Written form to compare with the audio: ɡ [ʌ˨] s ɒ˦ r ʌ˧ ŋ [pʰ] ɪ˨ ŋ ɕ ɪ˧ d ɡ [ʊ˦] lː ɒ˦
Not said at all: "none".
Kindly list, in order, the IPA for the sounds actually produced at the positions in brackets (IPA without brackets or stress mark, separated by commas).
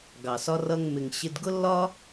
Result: ɑ˨, m, ʊ˦